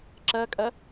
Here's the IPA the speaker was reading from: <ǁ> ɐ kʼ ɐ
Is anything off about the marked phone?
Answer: no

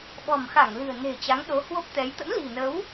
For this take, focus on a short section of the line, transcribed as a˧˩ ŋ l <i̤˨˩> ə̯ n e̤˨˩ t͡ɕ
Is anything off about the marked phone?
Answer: yes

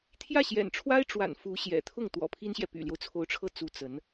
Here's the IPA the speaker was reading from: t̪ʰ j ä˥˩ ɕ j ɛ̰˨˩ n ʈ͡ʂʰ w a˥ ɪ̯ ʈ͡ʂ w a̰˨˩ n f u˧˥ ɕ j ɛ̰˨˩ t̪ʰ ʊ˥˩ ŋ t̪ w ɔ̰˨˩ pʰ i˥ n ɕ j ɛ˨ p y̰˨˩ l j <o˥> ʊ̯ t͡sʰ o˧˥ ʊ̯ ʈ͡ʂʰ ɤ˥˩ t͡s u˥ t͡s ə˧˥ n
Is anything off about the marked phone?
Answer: yes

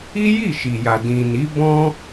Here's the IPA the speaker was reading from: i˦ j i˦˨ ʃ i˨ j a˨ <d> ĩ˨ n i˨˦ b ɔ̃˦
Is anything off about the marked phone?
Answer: no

